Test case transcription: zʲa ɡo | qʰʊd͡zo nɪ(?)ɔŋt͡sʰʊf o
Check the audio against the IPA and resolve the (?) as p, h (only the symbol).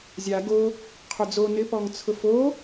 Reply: p